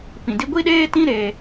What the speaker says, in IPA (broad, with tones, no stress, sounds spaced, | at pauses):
p ĩ˨ d i˦ ɡʷ i˦ ɗ eː˦ t ĩ˦ ɾ e˦